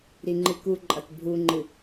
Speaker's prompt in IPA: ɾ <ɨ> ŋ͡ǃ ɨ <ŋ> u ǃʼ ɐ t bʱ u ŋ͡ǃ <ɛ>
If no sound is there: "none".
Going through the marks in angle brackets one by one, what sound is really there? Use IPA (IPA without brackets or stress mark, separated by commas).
i, k, ɨ